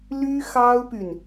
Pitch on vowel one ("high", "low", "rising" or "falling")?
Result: high